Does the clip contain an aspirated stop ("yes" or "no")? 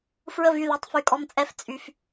no